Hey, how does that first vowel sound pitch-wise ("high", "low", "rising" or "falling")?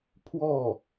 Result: falling